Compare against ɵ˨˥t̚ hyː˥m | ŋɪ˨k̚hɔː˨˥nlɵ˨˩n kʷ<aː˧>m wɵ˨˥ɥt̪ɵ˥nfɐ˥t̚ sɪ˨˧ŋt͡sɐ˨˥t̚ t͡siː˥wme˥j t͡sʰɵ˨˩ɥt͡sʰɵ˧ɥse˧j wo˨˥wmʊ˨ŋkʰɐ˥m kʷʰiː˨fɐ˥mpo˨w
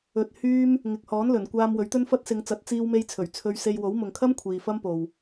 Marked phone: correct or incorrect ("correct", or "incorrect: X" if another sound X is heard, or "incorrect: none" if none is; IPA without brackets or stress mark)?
correct